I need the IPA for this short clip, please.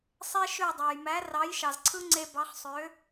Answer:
sˤ e˧ ʃ ø˥˩ dˤ æ˩ j m æ˩˥ r ɑ˩˥ j ʃ ɑ˩ z ǀʰ ɯ˥ ŋ͡ǀ e˧ b ɑ˩˥ χ sˤ ø˩˥

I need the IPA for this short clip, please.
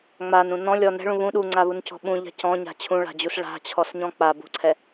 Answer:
ŋ͡m a n ũ n ɔ̃ lʲ ɔ n ɛ̤ ɭ ũ β ũ ɗ u ŋ͡ǀ a β u n c ɔ̤ ɓ ũ ʎ a̤ c ɔ̃ ɲ a̤ t͡ɕʰ ũ ɭ a̤ d͡ʑ u s ɭ a̤ t͡ɕʰ ɔ s ɲ ɔ̃ k͡p a b ṳ ǀʰ ɛ

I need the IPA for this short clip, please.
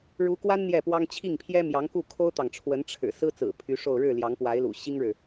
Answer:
ɻ u˧˥ k w a˥ n n̪ j ɛ˥˩ p w ɑ˥ ŋ t͡ɕʰ i˥˩ ŋ pʰ j ɛ˥ m j ɑ˧˥ ŋ k u˥˩ kʰ o˥ ʊ̯ t̪ ɑ˨ ŋ ʈ͡ʂʰ w ə˧˥ n ʈ͡ʂʰ ɻ̩˨˩ s ɹ̩˥ t͡s ɹ̩˨˩ pʰ y˧˥ ʂ o˥˧ ʊ̯ ɻ ɻ̩˥˩ l j ɑ˧˥ ŋ p w a˧˥ ɪ̯ l ṵ˨˩ ɕ i˥ ŋ ɻ ɻ̩˨

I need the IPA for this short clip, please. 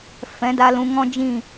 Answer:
f ɛ̃˨˦ d a˧ l ũ˧ ŋ ɔ̃˦ d͡ʒ ĩ˦˨

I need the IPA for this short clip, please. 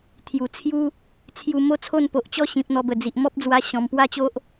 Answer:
t̪ʰ j u˨˩ t͡sʰ j u˦ | t͡sʰ j u˧ m o˥˧ t͡sʰ o˥˧ n p o˨ ʔ t͡ɕ ɔ˦ ɕ ĩ˨ p̚ n̪ ɔ˧ b ə˨˩ d͡z i˨ ʔ m ɔ˦ p̚ d͡z w a˧ ɕ ɔ̃˨˩ m p w a˥˧ t͡ɕ o˦ ʔ

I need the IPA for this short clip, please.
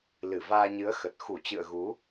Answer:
l ɨ˧˩ v aː˧ ɲ ɨ˨˦ ə̯ x ə˨˩ t̚ x u˧˩ t͡ɕ ɨ̰˧˨ ə̯ ɣ u˨˦

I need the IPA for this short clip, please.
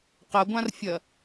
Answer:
q ɐ ɡʷ ã r fʲ ɐ

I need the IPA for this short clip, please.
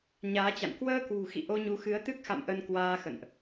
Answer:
ɲ aː˨˦ t͡ɕ a̰˧˨ n k w əː˧ k w ṳ˨˩ x ḭ˧˨ ʔ o˧ ɲ u˨˦ x ɨ˨˦ ə̯ t̪ ɨ˦˥ k̚ x a̰˧˨ m ʔ ə˧ n k w aː˧ x ə̰˧˨ n ʔ

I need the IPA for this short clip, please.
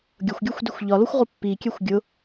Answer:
ɡʲ ʊ xʷ ɡʲ o xʷ d i xʷ ʎ ɒ l o xʷ ʁ o pː i kʲ ɛ xʷ ɡʲ ʊ

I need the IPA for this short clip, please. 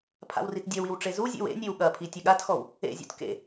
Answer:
pʰ a̰ w r i t dʲ ɐ w i w ʈ͡ʂ e z u zʲ ḛ w ḛ nʲ e w ɠ ɐ pʰ i tʲ ə ɠ a t x ɔ w | ḛ zʲ ṵ t k ḛ

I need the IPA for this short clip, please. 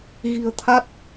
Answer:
ɣ i̤˨˩ ə̯ t̪ʰ a˦˥ t̚

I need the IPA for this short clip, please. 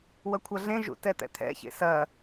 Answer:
w ɐ kʷʰ ɐ ɮ ẽ ʒ ṵ t ɛ t̪ ɛ̰ t̪ʰ ɛ̰ ç ḛ s ɐ

